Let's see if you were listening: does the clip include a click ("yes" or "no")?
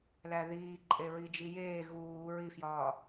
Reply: yes